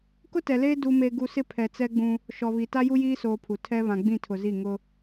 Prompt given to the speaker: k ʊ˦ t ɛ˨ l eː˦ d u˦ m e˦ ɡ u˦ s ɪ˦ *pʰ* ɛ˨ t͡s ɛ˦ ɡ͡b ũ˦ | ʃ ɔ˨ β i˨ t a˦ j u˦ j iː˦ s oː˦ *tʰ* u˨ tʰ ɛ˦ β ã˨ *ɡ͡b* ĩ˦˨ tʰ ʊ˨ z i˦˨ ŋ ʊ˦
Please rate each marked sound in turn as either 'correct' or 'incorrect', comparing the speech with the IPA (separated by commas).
correct, incorrect, correct